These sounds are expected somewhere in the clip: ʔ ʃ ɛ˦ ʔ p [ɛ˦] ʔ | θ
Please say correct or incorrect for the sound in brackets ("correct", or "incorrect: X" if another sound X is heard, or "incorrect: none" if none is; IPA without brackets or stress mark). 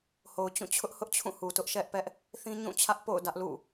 correct